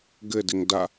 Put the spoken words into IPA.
ɡ ɘ d ɪ ŋ d a

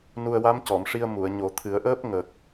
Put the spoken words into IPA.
n u˧ ə̯ w a˧˥ m c ɔ˨˩˨ m ʂ i˧ ə̯ m u˨˩˨ ə̯ ɲ o˨˩˦ t̪ʰ ɨ˨˩˦ ə̯ ʔ əː˦˥ p̚ ŋ ə˨˩ k̚

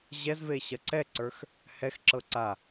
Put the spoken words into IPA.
ʑ ɛ z v e ɕ ɐ ǀ ɛ ǀ ə˞ x | h ɛ x ǁ ɤ ǀ a

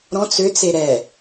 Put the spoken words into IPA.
ɾ ɔ̃ t͡s ø t͡s e ɾ ɛ

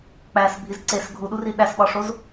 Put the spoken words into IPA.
k͡p æ s bʱ i z ǀ e s ɡʱ u ɗ u r i ɗ æ s ɓ ɒ ʂ o z

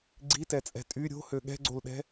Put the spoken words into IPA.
ɡ͡ǀ i t ɛ t͡sʼ ɛ̤ tʼ y ɾʲ o̤ h ø ɠ ɛ̤ ɡ͡ǀ o l ɗ ɛ̤

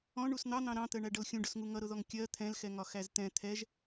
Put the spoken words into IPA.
ɔ̃ ɳ u s n̪ ɑ n̪ ɑ̃ ɾ ɑ̃ t̪ ɜ ɳ æ ɖ ʌ l xʲ ũ ɖ ʊ s ŋ u ŋ ʌ ɾ ʊ ð ɔ ŋ kʲ ɜ t̪ʰ ɛ̃ l x ɛ ŋ ɒ x æ z t̪ ɛ̃ t̪ʰ ɛ ʒ

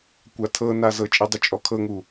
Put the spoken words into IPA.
kʷ a tʰ ɤ n a z ɤ t͡ʃʼ e dˤ u t͡ʃʼ ɔ kʰ ɤ ŋ u

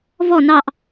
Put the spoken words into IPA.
v ɔ n ɑ ʔ

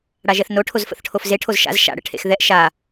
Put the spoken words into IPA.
ɽ a ʒ ɛ θ n o ʈʰ o z f ə̰ θ ʈʰ o f z e ʈʰ o z ʃ a̰ z ʃ a̰ ɽ ə̰ ʈʰ ḛ x ð ɛ ʔ ʃ a

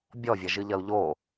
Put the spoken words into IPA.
bʲ ɔ vʲ ɐ ʒ ɨ ʎ ɐ u̯ ʎ o

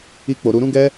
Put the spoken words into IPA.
i˦ k͡p o˧ ɾ u˧ ɾ ũ˦ ɡ ɛ˦

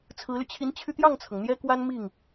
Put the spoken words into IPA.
t͡sʰ ɹ̩˧˥ l y˧ t͡ɕʰ i˧˥ n t͡ɕʰ y˧ t̪ j ɑ˥˩ ŋ t͡sʰ ɤ˩ ŋ n̪ j ɛ˥ k w a˥ n m i˥˩ ŋ

